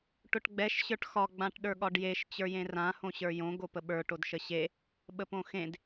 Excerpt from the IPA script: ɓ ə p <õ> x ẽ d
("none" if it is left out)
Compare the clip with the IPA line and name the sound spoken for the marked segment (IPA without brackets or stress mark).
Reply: õ